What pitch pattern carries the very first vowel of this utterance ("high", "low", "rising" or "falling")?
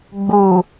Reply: low